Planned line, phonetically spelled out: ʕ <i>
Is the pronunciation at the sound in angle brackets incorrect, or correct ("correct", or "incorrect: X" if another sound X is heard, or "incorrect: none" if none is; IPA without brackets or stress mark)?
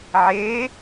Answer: incorrect: e